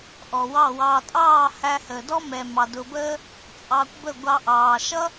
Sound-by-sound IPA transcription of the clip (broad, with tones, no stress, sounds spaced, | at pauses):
ʔ ɔ˨ w ɑ˦˨ w ɑː˧ tʼ ɑː˦˨ h æ˧ h əː˨ d ɔ˦ m ɛ˨ m ɑ˨ d ʊ˨ b əː˦ | t͡sʼ ɑ˧ kʷ b ə˦˨ ɡʷ ɑ˧ ʔ ɑː˨ ʃ ʌ˦